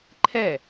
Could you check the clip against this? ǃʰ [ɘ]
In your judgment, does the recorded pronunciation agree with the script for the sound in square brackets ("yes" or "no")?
no